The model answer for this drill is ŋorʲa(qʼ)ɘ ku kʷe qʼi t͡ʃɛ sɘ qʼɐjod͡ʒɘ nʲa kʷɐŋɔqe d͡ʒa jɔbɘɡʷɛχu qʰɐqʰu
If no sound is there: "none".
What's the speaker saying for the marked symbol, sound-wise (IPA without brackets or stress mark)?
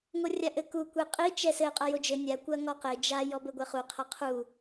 ʔ